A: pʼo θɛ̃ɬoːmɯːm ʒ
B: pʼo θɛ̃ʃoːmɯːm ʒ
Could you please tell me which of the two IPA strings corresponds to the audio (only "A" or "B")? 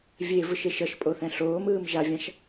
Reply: A